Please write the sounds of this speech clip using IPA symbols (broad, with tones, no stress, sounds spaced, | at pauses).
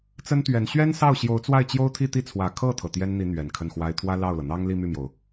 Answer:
t͡s ə˥ n t̪ ɥ ɛ˧˥ n ɕ ɥ ɛ˥ n s ɑ˥˩ ʊ̯ ɕ j o˧˥ ʊ̯ t͡s w a˥˩ ɪ̯ t͡ɕ j o˥ ʊ̯ t̪ʰ i˥˧ t̪ i˥˩ t͡sʰ w ä˨˩ kʰ ɤ˥˩ t̪ʰ ɤ˩ t̪ j ɛ˥ n n̪ i˧˥ n̪ ɥ ɛ˨˩ n kʰ ə˥˩ n x w a˥ ɪ̯ t̪ʰ w ä˥ l ɑ˥˩ ʊ̯ l ɤ˩ n̪ ɑ˥ ŋ l i˥˧ m y˥˩ m j o˩ ʊ̯